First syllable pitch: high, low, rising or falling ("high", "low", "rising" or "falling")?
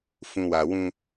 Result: low